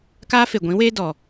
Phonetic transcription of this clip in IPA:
k aː˦ f e˨ ɡʷ ĩ˨˦ w eː˦ d ɔ˨

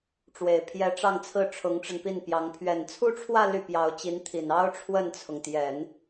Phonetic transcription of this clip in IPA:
ʈ͡ʂ w e˨˩ ɪ̯ pʰ j ɛ˧˥ ʈ͡ʂ ɑ˥˧ ŋ t͡sʰ ɹ̩˥˩ ʈ͡ʂʰ ʊ˧˥ ŋ ʈ͡ʂ ə˧ n p i˥˩ n p j ɑ˧˥ ŋ pʰ ɥ ɛ˨˩ n t͡sʰ u˥ ʈ͡ʂʰ w ä˥˧ l y˥˩ p j ɑ˧˥ ʊ̯ t͡ɕ i˧˥ n t̪ʰ i˨˩ n ɑ˥ ʊ̯ ʈ͡ʂʰ w ə˥˩ n t͡sʰ ʊ˩ ŋ t̪ j ɛ˨˩˦ n

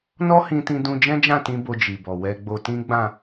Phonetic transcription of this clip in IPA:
n ɔ˦ h ĩ˧ t ĩ˧ d ũ˧ d͡ʒ ɛ̃˦ d͡ʒ ã˦˨ t ĩ˧ b o˧ d͡ʒ i˨ b ɔ˨ w ɛ˧ ɡ͡b o˧ t ĩ˦ ɡ͡b ã˦˨

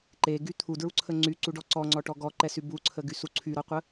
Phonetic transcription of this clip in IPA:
ǃ e ɡ y t̪ʰ u d ɹ u ǀʰ ə ŋ͡ǀ y ǀ u ɖ ɔ ǀ ɔ ŋ͡ǀ ɔ ʈ ɔ ɡ ɔ ǃ ɛ s y b u ǀʰ ə ɡ y s u ǀʰ y ɾ ɔ qʷ ə

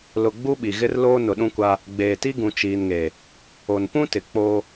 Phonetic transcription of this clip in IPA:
l ʊ˨ ɡ͡b u˦ ɓ i˨ ɣ ɪ˦ r l oː˦ n ʊ˨ ɗ ũ˦ kʷ a˦ | ɡ͡b eː˨ t i˦ ɡ ũ˨ t͡ʃ iː˨ n ŋ e˨ | o˨ n p ũ˦ t ɪ˨ k͡p o˦

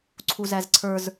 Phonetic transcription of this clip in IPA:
ǀʰ u z æ z ǀʰ ə˞ z

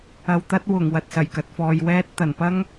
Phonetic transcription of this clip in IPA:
ɐ˨ w t̪ ɐ˥ t̚ w ʊ˨˩ ŋ w ɐ˨ t̚ s ɐ˨˩ j k ɐ˨ t̚ f ɔː˨ j w ɛː˧ t̚ t̪ ɐ˨˩ n p ɐ˥ ŋ

